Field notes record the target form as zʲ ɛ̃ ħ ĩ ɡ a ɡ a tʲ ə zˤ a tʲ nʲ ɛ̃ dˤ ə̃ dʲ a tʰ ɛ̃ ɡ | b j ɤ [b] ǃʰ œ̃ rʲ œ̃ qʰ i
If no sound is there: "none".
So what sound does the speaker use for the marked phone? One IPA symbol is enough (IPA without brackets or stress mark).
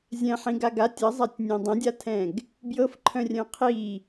f